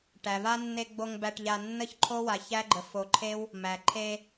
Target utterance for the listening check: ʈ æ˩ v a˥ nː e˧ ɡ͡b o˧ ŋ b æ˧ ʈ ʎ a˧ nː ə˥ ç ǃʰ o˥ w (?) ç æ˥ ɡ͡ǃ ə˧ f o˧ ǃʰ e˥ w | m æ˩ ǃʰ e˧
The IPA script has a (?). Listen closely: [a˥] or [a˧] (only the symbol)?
a˧